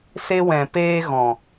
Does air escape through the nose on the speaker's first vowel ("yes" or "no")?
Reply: no